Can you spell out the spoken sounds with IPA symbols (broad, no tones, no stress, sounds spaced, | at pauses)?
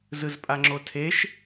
z ɯ z pʼ a ŋ͡ǁ o tʰ e ʃ